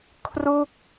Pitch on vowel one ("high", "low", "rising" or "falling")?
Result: falling